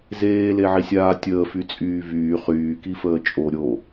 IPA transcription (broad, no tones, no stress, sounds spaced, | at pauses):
z eː l e ʕ i sʲ aː tʲ əː f y t͡sʼ yː v yː χ yː k i f əː t͡ʃʼ o ɾʲ o